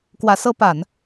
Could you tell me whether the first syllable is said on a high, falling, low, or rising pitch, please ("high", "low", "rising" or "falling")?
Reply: rising